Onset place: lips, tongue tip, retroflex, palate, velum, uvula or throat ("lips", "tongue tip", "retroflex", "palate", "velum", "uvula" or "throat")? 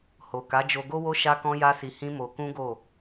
throat